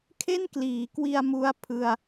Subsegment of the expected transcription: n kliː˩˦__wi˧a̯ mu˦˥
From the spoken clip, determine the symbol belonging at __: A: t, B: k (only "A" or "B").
B